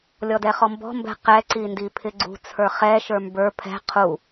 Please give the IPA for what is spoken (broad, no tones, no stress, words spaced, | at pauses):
lʲɔdɛχɔmbɔ̤ mbɛ̤qɛ ǀindipʰɪɡ͡ǀṳ t͡sʰə˞χɛ ʃə˞mbə˞ pʰɛ̤ qʰu